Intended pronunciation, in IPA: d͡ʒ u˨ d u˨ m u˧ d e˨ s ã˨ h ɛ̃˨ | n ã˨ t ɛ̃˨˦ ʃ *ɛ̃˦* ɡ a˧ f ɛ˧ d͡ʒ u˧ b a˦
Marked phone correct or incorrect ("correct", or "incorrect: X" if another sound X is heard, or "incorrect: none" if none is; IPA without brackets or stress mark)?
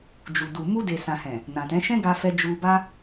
correct